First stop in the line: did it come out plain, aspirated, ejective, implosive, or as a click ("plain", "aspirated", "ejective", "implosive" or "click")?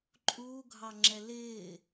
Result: click